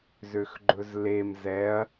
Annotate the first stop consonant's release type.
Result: click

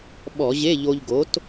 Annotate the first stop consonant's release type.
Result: implosive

